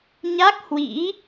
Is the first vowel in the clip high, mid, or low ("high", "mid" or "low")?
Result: low